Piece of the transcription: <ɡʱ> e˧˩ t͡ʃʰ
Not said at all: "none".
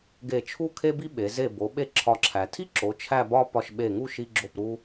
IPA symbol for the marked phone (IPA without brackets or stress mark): ɡ